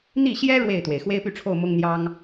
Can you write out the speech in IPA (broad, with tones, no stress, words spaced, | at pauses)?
n̪i˥˩ɕjɛ˥ ɻwe˥˩ɪ̯t̪we˩ɪ̯ xwe˥ɪ̯py˥˧ʈ͡ʂʰo˥˩ʊ̯ mʊ˥ŋn̪jɑ˥ŋ